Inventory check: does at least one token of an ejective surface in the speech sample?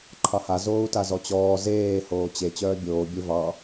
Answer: no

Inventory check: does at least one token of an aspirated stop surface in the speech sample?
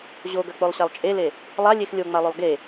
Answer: no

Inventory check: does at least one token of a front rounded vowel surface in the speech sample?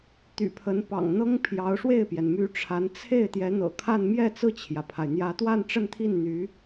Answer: yes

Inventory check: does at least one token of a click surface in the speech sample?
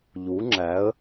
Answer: yes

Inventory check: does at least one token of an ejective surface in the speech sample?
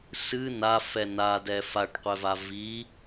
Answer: no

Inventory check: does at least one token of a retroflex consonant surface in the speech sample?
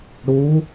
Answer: yes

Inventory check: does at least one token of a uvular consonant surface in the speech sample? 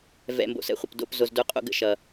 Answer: yes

